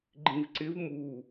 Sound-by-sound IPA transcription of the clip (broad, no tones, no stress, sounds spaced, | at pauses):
ɡ͡ǃ ĩ v ǀ ɪ v m u